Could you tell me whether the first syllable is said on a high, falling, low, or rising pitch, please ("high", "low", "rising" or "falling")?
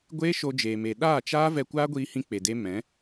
high